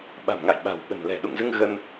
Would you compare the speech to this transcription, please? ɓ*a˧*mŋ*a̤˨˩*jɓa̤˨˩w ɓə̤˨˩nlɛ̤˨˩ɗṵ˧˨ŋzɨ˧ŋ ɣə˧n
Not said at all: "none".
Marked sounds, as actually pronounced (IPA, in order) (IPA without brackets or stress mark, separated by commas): a̤˨˩, a̰˧˨